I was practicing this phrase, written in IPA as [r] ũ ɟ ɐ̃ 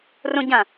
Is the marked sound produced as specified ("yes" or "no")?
yes